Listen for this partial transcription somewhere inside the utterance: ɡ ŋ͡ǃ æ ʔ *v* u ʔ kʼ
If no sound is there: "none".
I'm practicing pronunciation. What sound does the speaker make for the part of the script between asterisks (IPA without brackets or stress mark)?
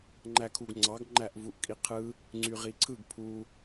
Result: v